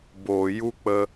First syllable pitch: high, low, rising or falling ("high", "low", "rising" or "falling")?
low